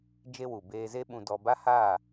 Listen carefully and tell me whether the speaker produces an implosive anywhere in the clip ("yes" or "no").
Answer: yes